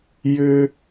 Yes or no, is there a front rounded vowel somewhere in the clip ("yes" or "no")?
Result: yes